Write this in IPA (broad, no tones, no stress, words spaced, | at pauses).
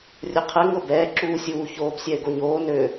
rʲʊ qʰɛ ŋɤbɛː ǁuːsʲuːçoːb sʲɛɪ̯ɡoɲoː nø